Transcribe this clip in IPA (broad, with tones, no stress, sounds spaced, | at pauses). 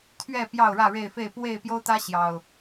t̪ʰ ɥ ɛ˥˨ p j ɑ˥˨ ʊ̯ ɻ ä˥˨ ɻ e˥˨ ɪ̯ f e˥˨ ɪ̯ p w e˥˨ ɪ̯ p j o˦ ʊ̯ t̪ ä˦ ɕ j ɑ˨˩ ʊ̯